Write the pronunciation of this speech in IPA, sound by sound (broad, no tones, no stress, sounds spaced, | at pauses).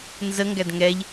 n z ə ŋ ɡ æ d ŋ ɛ ʎ